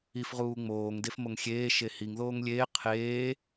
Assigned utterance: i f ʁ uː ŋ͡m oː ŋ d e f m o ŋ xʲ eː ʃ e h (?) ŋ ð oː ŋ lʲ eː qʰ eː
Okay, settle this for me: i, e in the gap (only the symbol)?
i